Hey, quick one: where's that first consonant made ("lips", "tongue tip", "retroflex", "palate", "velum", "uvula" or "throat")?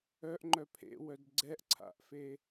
throat